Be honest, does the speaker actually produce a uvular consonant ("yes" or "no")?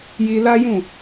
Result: no